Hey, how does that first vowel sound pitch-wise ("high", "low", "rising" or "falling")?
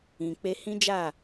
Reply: low